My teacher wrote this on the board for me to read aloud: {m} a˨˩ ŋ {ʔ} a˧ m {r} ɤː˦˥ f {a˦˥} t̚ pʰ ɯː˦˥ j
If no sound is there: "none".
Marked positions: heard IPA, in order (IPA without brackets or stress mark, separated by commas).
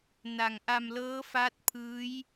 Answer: n, ʔ, l, a˦˥